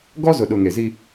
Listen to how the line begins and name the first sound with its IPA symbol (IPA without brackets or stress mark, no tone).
ɡ